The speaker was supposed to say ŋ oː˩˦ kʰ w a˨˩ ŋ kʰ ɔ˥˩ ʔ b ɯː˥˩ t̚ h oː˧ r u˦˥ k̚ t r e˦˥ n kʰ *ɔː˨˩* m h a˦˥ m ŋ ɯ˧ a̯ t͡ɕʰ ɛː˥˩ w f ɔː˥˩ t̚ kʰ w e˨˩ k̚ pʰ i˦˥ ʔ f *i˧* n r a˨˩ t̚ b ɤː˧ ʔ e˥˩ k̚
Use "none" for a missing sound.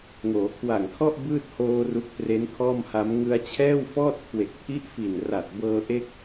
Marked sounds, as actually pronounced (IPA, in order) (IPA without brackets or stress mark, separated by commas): ɔː˥˩, i˨˩